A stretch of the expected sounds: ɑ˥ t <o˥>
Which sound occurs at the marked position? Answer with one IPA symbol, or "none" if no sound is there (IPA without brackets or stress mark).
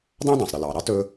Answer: ɵ˥